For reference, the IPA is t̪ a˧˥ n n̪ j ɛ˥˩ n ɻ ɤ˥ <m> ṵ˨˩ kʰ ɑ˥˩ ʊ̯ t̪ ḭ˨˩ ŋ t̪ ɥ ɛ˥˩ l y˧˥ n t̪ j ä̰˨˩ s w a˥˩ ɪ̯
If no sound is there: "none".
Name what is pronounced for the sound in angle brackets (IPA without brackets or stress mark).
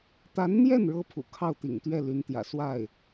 pʰ